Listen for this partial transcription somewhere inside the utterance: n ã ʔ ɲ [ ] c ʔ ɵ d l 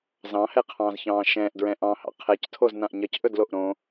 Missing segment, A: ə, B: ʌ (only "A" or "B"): B